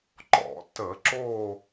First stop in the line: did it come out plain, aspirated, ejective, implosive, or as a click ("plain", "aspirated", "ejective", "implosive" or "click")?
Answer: click